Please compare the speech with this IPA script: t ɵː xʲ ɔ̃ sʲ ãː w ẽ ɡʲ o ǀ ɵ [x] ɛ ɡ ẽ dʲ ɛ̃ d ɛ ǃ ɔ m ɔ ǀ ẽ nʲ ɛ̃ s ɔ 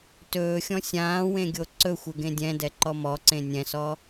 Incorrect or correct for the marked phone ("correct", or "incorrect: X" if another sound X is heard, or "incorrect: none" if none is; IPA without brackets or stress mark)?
incorrect: xʷ